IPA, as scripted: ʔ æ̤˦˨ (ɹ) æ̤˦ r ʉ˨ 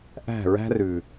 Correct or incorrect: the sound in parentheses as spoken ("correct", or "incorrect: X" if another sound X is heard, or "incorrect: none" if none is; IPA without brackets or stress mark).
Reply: correct